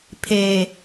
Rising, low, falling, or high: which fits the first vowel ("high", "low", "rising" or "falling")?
low